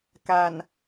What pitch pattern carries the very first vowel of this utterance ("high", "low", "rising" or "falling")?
low